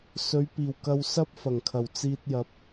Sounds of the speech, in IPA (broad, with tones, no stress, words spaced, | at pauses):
sɵ˨˧ɥ piː˨˩w kɐ˧w sɐ˥p̚ fɐ˨˩ŋkʰɐ˨˩w t͡siː˧t̚jɐ˨˥p̚